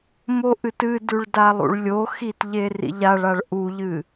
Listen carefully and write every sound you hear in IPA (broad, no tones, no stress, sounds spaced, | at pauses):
m o ʔ ɨ t ɨ d ʉ ɭ d a lˠ ṵ ɭ lʲ o x i t ʎ e r ḭ ʎ a ɭ a ɭ ʔ u ʎ ɨ